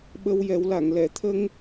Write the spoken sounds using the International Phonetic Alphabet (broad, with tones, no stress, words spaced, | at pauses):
ɓə˧wjɛ˨˩˦wla˨˩˨ŋ lɛ˨˩˨t̪ʰə˧ŋ